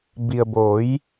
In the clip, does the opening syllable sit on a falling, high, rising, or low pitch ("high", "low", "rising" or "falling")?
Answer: low